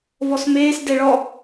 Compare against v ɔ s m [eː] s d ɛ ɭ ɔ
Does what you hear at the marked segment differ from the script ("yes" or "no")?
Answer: no